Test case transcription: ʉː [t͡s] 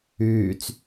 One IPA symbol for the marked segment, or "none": t͡s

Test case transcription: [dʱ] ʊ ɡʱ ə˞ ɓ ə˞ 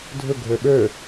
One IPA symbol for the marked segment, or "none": dʱ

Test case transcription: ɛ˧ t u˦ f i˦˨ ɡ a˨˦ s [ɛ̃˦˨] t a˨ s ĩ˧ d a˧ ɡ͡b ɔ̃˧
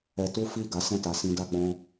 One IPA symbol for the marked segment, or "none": ɛ̃˦˨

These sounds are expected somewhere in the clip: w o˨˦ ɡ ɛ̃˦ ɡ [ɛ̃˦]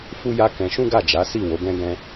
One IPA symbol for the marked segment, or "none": ɛ̃˦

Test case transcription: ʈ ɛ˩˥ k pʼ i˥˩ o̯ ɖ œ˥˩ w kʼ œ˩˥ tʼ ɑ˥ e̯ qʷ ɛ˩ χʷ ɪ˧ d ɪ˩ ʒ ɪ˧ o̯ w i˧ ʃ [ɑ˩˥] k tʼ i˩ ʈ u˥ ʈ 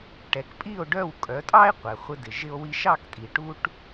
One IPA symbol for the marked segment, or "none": ɑ˥˩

